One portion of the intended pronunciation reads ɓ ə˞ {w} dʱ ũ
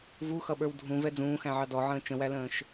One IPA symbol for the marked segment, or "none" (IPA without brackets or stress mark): w